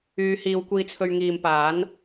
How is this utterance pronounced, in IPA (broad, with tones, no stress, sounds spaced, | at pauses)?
yː˨˧ h iː˨˧ w kʷ iː˧ t͡sʰ ɵ˧ ɥ ŋ iː˨ m p aː˨˥ n